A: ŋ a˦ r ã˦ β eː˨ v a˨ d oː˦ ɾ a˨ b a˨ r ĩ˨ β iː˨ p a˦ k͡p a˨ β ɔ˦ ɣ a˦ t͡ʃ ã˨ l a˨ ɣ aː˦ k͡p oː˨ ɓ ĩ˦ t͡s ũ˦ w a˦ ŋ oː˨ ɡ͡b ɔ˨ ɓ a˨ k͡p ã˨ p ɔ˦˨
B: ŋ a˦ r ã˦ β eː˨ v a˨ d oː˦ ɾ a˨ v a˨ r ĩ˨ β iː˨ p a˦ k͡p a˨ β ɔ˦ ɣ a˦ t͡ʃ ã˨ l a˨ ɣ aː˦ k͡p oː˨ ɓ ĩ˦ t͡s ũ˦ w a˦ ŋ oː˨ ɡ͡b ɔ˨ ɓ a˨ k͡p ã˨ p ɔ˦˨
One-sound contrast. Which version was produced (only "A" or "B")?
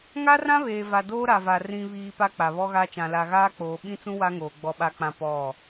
B